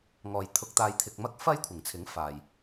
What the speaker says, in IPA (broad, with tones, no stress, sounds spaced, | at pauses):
ŋ ɔː˨ j t̪ʰ ʊ˧ k̚ t̪ aː˧ j t̪ʰ ɪ˧ k̚ m ɐ˥ k̚ f ɐ˥ j kʷʰ ɪ˨˩ ŋ t͡sʰ ɪ˨˥ ŋ f aː˨ j